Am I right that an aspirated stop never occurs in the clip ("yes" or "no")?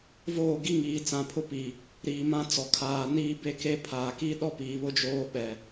no